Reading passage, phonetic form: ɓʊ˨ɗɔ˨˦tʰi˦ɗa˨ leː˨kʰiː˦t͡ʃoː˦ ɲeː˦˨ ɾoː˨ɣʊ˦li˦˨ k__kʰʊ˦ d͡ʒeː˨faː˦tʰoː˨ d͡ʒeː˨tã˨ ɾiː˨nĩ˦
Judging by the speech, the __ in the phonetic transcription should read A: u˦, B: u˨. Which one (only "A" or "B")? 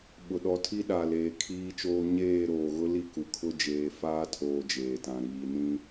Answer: B